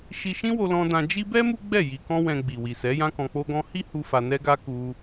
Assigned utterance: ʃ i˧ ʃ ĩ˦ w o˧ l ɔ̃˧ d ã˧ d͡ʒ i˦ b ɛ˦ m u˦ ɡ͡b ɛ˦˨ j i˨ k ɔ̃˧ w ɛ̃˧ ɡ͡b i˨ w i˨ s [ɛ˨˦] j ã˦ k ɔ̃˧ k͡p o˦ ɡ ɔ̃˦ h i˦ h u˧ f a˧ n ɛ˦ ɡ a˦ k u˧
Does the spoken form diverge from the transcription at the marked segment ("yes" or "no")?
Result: no